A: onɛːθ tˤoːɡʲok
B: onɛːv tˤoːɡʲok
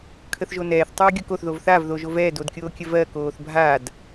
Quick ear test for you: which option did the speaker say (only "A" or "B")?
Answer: A